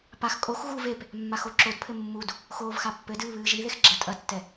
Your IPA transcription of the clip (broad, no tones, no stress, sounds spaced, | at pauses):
p a x kʼ o x ɣ u v e p | mː a x o ǁ o d pʰ ɘ mː u d | x oː v x a pː ɘ d ɨː β ɨː ʒ i ð e x ɡ͡ǁ ɐ tʼ ɐ tː ɛ